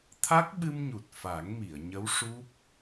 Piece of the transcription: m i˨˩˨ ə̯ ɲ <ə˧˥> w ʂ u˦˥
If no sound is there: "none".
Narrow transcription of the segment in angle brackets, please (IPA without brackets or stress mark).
ə˧˥